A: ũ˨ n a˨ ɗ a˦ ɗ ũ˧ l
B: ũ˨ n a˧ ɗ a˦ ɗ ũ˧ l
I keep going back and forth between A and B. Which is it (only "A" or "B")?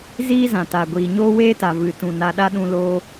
B